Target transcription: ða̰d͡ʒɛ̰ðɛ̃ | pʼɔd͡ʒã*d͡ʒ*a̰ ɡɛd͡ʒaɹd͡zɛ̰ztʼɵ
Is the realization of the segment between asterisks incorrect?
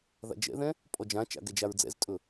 yes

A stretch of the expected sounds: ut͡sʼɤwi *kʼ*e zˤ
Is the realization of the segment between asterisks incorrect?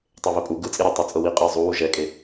yes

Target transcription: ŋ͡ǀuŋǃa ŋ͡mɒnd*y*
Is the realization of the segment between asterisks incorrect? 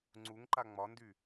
no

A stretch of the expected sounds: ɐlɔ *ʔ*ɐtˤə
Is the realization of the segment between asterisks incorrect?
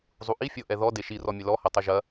yes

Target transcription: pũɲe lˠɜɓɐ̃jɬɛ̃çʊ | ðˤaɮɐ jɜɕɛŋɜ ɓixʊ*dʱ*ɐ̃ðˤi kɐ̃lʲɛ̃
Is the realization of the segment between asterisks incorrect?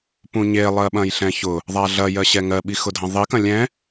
no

